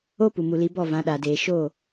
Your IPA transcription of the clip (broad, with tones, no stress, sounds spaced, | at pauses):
o˦ p u˨ m u˨ l i˨˦ b ɔ˦˨ v ã˨˦ ɗ a˨ d eː˨ ʃ o˦˨